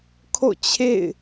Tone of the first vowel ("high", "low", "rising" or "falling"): falling